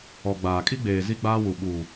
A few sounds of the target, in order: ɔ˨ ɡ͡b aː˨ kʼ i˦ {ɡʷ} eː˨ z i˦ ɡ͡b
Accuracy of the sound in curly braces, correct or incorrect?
incorrect